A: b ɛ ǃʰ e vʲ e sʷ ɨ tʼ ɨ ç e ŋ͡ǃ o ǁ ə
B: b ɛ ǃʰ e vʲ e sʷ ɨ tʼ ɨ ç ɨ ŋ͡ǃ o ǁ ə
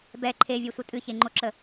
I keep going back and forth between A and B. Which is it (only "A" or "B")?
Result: A